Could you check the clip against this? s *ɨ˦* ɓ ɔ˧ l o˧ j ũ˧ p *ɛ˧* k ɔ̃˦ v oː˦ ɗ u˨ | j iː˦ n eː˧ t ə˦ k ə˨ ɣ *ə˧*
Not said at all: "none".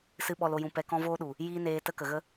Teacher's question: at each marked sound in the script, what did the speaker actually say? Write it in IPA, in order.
ɨ˦, ɛ˧, ə˦

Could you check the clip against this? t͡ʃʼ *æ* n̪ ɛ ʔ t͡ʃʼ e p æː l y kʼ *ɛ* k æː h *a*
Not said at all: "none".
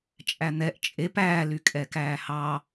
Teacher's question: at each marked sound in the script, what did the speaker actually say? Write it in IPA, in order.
æ, ɛ, ɑ

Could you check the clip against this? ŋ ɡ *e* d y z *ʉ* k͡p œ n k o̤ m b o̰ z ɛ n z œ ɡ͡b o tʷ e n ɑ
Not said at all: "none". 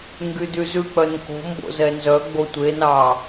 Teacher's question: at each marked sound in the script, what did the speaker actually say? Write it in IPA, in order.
y, ʉ

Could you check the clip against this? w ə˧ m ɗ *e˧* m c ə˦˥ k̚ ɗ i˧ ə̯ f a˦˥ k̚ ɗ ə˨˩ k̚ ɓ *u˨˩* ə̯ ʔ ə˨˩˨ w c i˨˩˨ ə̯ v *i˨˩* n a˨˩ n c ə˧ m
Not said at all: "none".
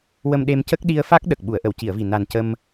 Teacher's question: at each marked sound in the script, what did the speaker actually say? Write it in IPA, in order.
e˧, u˨˩˨, i˨˩

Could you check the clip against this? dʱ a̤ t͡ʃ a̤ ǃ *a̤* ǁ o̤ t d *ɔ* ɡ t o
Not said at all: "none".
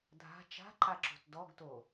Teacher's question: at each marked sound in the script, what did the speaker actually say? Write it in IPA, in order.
a, ɔ

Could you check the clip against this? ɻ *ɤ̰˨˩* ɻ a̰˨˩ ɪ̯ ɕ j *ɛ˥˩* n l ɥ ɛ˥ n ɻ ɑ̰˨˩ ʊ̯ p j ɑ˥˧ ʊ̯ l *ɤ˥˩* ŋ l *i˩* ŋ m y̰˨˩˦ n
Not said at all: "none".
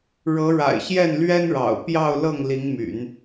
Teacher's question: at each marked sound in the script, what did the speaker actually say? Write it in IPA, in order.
ɤ˧˥, ɛ˥˩, ɤ˥˩, i˧˥

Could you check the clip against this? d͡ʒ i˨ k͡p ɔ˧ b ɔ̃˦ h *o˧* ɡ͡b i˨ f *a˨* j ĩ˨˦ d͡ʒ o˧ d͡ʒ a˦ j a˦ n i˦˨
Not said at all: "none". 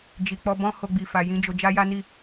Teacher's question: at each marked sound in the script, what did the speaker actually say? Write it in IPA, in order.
o˧, a˨

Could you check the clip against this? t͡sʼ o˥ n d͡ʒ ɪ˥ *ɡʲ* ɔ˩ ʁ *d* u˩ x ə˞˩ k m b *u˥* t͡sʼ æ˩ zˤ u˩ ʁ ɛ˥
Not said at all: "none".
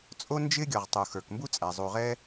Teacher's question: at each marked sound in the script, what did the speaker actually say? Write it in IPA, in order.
ɡʲ, tˤ, u˥

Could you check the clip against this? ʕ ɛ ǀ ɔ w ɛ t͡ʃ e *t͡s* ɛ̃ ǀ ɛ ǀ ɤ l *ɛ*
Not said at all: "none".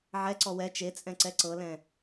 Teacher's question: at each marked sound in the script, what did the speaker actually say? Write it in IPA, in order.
t͡sʼ, ɛ̃

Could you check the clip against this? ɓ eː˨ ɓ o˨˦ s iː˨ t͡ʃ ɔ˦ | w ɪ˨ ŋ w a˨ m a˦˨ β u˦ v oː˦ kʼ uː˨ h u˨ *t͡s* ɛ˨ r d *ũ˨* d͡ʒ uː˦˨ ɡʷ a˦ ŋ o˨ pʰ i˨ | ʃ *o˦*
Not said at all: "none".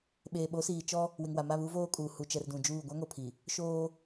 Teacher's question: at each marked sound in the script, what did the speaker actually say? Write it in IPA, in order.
t͡ʃ, ũ˨, oː˦

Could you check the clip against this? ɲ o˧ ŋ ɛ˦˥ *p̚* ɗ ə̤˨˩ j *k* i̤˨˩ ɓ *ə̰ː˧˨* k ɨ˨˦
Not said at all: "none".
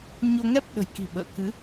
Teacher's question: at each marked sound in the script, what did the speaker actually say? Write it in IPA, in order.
p̚, k, ə̰ː˧˨

